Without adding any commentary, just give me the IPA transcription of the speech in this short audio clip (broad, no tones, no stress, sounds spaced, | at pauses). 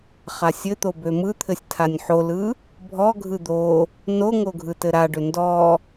χ a sʲ ɘ t̪ o b ø m ɯ t̪ʰ ɘ sʲ tʰ a nʲ ħ o l ɯ | bʱ ɔ ɡʱ ɯ d̪ o | n o ŋ o ɡʱ ɯ t ɘ ɾ a ɖ ʏ n d ɔ